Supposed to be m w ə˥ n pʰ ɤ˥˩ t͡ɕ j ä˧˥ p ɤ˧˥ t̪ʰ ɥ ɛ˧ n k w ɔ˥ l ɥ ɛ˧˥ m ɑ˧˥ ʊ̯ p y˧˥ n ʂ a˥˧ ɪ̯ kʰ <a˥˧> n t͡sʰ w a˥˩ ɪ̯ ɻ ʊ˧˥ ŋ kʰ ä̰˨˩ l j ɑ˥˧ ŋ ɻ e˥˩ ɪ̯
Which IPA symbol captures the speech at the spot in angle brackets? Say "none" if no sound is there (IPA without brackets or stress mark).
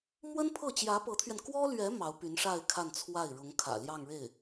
a˥˧